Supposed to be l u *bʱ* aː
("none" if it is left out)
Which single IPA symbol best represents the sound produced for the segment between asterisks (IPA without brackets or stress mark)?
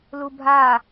bʱ